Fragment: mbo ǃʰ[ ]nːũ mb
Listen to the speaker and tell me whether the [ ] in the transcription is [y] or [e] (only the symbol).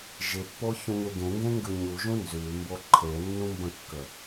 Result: e